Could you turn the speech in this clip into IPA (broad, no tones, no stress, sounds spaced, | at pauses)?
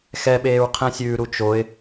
x ɛ ɓ eː ɹ qʰ ɛ̃ sʲ ʉː ɾ u t͡ʃ o ɪ̯